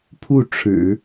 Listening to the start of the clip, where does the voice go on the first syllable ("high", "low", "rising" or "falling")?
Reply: falling